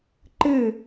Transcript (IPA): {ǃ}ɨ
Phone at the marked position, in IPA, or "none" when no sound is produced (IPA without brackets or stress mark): ǃ